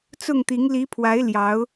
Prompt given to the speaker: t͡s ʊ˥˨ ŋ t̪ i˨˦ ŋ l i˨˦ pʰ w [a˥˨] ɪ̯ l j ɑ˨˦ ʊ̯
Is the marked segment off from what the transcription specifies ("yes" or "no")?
yes